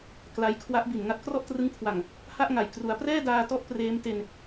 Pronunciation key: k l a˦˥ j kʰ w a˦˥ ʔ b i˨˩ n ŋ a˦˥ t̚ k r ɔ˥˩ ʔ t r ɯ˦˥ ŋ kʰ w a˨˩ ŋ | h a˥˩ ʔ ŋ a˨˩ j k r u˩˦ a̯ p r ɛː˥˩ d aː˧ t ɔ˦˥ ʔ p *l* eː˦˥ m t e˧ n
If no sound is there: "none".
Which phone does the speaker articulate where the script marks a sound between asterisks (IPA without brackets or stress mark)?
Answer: r